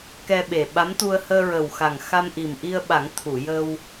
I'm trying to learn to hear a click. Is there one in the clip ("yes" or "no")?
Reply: no